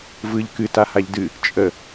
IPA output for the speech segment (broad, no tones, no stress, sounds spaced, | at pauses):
v ɯ ʎ k ɨ t a h a ʎ d ɨ | t͡ʃʼ ə